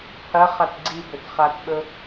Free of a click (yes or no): no